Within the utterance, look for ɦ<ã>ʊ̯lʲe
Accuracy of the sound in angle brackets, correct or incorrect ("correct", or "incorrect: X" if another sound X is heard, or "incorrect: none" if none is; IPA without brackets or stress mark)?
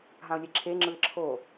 correct